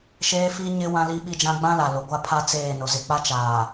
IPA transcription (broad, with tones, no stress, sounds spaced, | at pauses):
ʃ eː˦ f i˦ ɲ ɪ˦ w ã˦ l i˦ ɓ i˦ d͡ʒ ã˦ ɡ͡b ã˦ l a˨ l ʊ˨ ɡʷ a˦ pʰ a˦ t͡s eː˦˨ n ʊ˨ z ɪ˨ k͡p a˦ t͡ʃ aː˨